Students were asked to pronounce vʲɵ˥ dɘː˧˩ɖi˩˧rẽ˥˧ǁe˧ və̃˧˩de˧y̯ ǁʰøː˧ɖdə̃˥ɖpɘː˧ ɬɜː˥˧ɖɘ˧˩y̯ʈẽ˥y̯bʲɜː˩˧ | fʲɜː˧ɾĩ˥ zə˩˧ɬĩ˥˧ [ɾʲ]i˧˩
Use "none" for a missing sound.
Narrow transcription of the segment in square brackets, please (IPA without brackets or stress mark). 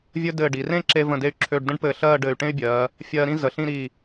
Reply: ɾ